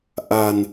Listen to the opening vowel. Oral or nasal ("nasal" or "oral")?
oral